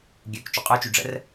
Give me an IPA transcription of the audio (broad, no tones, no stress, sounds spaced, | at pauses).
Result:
ɡʲ ø k t͡ʃ o qʼ œ t͡ʃ y ɖ͡ʐ ə̰ r